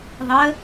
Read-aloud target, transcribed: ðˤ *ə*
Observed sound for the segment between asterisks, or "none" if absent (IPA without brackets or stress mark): ə